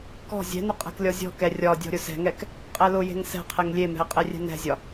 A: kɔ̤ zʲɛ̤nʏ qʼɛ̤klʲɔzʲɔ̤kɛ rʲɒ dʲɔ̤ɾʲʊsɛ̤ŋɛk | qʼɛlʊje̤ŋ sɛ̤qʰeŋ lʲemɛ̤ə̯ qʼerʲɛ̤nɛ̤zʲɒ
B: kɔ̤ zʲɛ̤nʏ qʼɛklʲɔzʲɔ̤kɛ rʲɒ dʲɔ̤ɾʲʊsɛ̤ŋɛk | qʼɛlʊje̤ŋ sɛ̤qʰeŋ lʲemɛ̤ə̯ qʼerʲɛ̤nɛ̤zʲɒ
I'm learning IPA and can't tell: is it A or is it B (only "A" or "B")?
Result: A